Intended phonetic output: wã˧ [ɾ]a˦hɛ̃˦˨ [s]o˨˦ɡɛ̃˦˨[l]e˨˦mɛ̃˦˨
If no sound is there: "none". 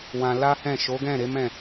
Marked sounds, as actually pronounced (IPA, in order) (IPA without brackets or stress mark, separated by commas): l, ʃ, ɾ